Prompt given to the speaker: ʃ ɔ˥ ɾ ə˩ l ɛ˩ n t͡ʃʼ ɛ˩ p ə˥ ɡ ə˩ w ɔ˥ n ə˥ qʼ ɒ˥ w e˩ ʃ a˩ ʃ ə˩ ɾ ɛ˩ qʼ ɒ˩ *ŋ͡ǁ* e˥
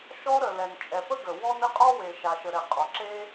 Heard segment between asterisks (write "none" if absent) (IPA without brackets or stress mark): ǁ